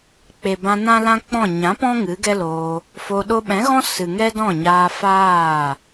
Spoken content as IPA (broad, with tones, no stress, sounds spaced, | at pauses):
k͡p e˨ b ã˧ n ã˦ l ã˦ k͡p ɔ̃˦˨ ɲ ã˨˦ p ɔ̃˦ ŋ ɨ˨˦ ɡ ɛ˦ l oː˧ | f o˧ ɗ o˧ ɓ ɛ̃˨˦ ɣ ɔ̃˦ s ɨ˨ ŋ ɛ˦ d ɔ̃˦˨ ɲ aː˧ f aː˦˨